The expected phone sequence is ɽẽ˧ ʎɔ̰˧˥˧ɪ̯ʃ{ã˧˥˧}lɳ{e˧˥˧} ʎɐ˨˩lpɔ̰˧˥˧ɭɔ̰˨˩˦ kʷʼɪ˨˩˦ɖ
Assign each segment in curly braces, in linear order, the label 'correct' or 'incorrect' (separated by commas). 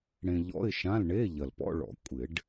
correct, correct